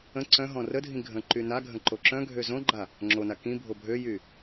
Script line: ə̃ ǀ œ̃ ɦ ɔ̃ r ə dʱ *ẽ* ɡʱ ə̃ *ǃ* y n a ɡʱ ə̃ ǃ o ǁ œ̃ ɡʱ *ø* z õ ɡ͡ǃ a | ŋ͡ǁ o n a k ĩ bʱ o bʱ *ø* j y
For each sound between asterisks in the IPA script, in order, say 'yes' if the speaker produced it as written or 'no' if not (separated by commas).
no, yes, yes, yes